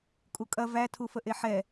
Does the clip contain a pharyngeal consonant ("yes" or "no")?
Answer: yes